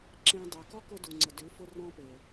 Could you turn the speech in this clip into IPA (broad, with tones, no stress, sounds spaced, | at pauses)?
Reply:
ǁ ẽ˧ dˤ ʉ˨ k ɔ˦ k ʊ˧ d u˨ ŋ͡ǀ ə˨ d ʉ˨˦ f ʊ˧ r ɔ̃˧ p e˨